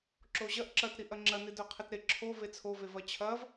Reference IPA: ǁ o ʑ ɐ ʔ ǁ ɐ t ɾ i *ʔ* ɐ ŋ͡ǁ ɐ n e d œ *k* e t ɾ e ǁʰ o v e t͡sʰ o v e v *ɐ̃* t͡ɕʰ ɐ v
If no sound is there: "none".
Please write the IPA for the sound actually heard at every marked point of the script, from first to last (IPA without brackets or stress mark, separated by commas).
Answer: ʔ, qʰ, ɐ